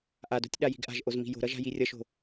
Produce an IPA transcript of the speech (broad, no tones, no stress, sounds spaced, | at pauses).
ʔ a d o̤ tʲ ɗ a j i̤ ɡ ʔ a̤ ʒ ʔ o z m i̤ j o̤ ɾ ʌ ʒ a̤ j i rʲ ʌ ʃ o̤